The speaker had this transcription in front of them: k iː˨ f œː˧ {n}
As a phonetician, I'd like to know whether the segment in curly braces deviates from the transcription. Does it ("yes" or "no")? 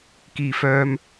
yes